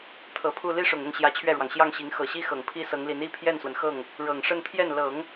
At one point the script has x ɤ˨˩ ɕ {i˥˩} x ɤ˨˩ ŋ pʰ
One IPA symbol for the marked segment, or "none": i˥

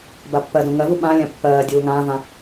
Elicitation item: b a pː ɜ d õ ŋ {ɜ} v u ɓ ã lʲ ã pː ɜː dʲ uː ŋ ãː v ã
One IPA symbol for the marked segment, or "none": ɜ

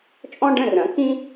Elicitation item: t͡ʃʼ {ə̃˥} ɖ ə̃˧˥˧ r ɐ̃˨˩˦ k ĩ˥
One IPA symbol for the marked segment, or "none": ɔ̃˥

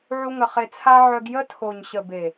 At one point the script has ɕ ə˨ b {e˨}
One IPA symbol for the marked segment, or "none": e˨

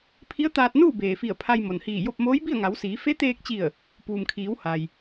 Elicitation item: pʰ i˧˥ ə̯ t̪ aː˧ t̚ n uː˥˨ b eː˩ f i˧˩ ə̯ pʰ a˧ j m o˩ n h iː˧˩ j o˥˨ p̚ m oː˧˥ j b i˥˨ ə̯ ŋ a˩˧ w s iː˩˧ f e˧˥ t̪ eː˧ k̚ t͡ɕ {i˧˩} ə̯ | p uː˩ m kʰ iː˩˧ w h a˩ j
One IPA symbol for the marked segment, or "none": i˧˩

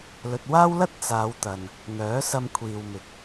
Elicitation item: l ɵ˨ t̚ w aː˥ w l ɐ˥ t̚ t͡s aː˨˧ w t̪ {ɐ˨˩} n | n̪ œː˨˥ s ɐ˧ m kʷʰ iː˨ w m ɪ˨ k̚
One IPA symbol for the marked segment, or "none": ɐ˨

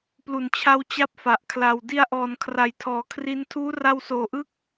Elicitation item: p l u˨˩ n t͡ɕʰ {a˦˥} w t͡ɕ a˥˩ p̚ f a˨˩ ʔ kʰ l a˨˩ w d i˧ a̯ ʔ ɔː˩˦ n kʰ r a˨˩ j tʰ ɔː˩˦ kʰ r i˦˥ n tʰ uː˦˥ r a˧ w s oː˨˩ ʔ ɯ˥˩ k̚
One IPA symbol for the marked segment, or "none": a˧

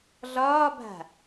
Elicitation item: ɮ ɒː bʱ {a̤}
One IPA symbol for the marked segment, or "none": a̤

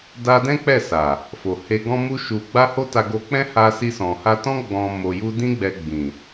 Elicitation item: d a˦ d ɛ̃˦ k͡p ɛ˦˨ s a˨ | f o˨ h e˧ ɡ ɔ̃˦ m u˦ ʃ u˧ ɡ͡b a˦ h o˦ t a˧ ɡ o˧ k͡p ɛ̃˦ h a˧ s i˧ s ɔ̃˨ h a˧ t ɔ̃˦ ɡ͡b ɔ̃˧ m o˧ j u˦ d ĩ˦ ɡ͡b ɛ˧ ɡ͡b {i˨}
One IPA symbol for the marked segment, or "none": ĩ˨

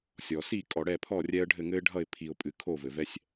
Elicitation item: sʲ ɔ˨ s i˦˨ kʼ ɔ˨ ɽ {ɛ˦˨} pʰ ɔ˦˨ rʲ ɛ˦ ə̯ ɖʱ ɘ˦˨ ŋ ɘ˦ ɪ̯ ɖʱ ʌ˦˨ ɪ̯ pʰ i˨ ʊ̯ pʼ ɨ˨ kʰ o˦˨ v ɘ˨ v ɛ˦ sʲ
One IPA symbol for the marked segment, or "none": ɛ˦˨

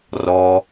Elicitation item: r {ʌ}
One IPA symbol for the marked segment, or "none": ɔ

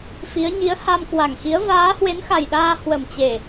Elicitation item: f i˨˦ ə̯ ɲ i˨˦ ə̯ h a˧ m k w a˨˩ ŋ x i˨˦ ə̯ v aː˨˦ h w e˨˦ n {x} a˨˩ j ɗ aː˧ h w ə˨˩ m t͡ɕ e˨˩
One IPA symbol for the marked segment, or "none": x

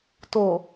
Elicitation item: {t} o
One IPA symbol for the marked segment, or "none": t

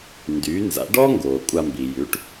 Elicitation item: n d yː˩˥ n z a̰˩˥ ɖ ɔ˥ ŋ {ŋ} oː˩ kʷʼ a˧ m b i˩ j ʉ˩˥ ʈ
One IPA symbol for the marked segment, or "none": ɡ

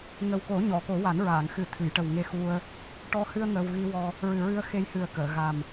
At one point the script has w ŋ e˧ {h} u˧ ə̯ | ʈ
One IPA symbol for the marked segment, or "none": x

